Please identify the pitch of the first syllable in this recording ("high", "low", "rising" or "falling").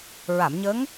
low